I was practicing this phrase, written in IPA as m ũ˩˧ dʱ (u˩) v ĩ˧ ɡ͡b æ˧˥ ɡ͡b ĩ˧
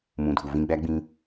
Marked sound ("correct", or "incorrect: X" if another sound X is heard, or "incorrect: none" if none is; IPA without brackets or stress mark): correct